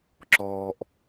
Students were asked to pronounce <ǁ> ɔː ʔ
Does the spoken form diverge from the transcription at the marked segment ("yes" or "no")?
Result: no